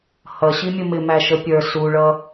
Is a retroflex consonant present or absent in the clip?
present